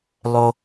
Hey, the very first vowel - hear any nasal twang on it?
no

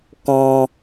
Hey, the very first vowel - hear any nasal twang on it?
yes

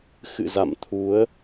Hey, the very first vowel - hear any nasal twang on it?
no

